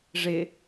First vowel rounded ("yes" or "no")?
no